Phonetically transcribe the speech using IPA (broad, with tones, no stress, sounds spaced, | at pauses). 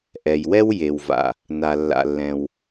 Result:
ʔ ɛ˩ j w ɛ˥ w j e˩ w v a̰˩ | n a˩ lː a̰˩ lː ɛ̃˩ w